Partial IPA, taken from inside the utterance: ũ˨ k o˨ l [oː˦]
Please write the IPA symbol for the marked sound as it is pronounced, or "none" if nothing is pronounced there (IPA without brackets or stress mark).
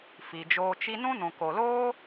oː˦